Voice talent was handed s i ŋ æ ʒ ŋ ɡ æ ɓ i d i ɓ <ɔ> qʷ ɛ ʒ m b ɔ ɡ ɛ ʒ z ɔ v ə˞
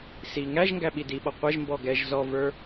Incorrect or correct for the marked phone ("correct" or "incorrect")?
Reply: correct